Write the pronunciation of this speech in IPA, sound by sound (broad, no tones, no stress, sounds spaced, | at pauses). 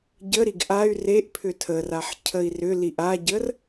ɟ ə ɾ i ɡ ʔ a y̯ r e ʔ pʰ ʏ tʰ ə r a ħ cʰ ə i̯ r ʏ l i ʔ a ɟ ə r